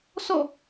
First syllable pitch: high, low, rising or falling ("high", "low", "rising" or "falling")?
falling